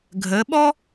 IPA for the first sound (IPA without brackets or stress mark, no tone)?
ɡʱ